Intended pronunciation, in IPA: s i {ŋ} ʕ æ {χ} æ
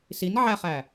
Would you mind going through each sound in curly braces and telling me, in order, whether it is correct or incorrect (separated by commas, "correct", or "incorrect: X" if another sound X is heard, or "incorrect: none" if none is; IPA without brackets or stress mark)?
incorrect: n, correct